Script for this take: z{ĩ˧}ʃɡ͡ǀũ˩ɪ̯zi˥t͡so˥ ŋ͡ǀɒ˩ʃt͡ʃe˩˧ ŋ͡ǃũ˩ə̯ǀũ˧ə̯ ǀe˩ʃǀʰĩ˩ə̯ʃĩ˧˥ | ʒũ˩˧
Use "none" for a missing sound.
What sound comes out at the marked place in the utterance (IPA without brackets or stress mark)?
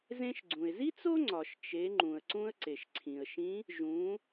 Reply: ẽ˧